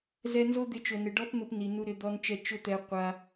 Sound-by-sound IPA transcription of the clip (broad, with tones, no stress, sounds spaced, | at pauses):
z ɛ˧ n z o˦ d̪ ɪ˧ t͡ʃ o˨ n ɪ˨ ɖ ɔ˦ p n̪ ʊ˧ p n i˨ n u˧ ɾ ɪ˧ d̪ ɔ˧ n t͡ʃ ɛ˧ t͡ʃ ʊ˦ t̪ ɛ˧ qʷ a˧